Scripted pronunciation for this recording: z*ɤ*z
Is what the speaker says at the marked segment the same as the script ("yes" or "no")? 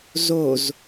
no